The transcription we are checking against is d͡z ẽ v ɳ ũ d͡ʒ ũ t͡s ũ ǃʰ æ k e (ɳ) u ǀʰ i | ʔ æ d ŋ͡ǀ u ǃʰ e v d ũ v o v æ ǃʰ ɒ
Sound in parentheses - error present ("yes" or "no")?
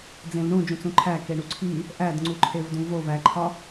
no